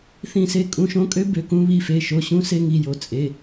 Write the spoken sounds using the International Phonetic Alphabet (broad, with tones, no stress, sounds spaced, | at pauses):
θ ĩ˧˩ s e˧˥ kʼ ũ˩˧˩ ʃ õ˧˥ kʼ ø˧˥ b ø˩˧˩ k ũ˧˥ β i˩˧˩ f e˩˧˩ ʃ o˩˧˩ ɕ ũ˧˥ s e˧˥ ŋ i˩˧˩ j o˩˧˩ t͡sʼ e˩˧˩